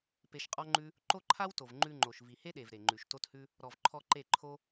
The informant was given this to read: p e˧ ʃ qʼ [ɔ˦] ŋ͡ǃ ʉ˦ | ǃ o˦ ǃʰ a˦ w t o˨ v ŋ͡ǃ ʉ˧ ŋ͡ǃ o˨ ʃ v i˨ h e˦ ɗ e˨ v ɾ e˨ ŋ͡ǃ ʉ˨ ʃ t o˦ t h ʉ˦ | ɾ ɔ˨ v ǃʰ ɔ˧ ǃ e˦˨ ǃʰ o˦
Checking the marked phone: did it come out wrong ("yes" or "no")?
no